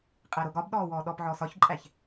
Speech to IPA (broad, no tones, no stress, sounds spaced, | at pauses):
qʼ æ ɾ o ɡ ɒ b ɗ ɔː w ɔː ɗ ɔ p ʕ ɔː s ɒ ç ǃʼ æ ç